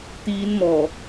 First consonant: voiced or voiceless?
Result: voiceless